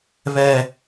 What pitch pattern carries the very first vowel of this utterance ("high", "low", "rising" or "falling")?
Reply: high